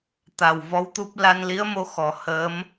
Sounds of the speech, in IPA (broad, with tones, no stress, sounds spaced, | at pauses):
t̪ a˨˩ w v ɔ˧˥ w t̪ u˦˥ p̚ l a˧ n l i˧˥ ə̯ m o˧ x ɔ˨˩˨ h əː˧˥ m